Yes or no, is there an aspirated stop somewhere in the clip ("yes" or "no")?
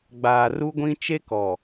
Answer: no